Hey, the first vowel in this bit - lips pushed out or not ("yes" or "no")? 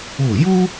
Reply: yes